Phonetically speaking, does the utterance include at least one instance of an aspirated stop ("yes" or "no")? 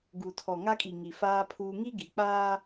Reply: yes